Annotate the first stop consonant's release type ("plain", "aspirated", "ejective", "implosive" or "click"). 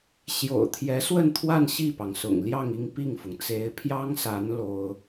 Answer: aspirated